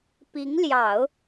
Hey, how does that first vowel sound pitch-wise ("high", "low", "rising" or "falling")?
rising